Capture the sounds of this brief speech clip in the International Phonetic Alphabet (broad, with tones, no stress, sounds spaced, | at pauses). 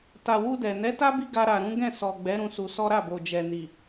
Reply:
t a˨ w u˧ d ɛ˨ n ɛ˨˦ t a˦ b i˦ ɡ a˧ ɾ a˨ ɾ ũ˨˦ ɡ ɛ̃˦˨ s ɔ˨ ɡ͡b ɛ˨˦ ɾ ũ˧ s u˧ s ɔ˦ ɾ a˦˨ b o˨ d͡ʒ ɛ˨ n i˨